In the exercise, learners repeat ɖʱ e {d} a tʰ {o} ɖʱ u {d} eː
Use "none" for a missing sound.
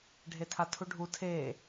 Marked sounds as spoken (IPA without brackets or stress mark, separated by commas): tʰ, u, tʰ